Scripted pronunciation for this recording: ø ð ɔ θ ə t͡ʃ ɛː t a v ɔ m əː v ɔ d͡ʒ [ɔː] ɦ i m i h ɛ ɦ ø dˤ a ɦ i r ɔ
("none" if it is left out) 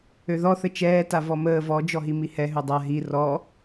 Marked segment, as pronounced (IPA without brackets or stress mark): ɔ